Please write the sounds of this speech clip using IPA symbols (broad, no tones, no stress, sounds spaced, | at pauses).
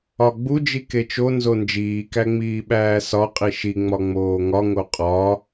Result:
ɒ ɡ͡b u d͡ʒ i k e t͡ʃ o n z o n d͡ʒ iː k æ ŋ͡m iː ɓ æː s ɒ qʼ i ʃ i ŋ͡m ɒ ŋ͡m oː ŋ ɒ ŋ o qʼ ɒ